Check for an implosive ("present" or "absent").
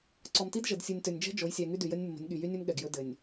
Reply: present